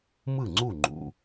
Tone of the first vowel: falling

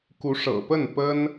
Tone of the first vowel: rising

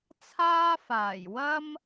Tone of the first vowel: high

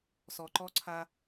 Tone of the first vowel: low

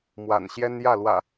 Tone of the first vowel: low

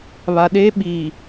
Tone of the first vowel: low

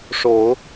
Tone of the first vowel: rising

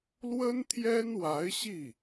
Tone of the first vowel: high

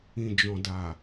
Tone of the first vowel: low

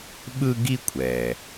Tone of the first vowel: high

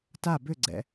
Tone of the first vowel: falling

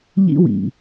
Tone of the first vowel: high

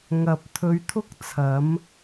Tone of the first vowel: low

